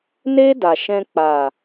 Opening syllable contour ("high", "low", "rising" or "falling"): high